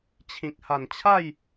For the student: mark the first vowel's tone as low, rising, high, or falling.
low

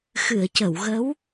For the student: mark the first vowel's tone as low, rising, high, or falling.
low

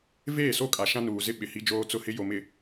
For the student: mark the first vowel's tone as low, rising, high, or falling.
falling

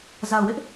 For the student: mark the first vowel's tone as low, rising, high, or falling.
low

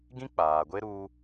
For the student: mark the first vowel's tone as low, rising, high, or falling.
high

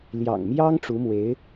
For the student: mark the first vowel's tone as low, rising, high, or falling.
low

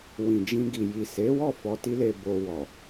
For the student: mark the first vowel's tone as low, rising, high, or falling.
low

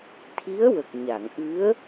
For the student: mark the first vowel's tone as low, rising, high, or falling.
rising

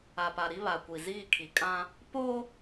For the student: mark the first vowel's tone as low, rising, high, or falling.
low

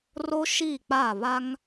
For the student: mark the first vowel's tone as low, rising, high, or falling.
high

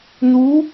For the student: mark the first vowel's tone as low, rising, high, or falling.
rising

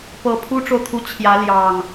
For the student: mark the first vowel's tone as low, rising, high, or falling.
low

